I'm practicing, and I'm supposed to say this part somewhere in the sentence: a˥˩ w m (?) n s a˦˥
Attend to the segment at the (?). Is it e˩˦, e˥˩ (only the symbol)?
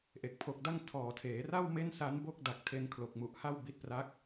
e˥˩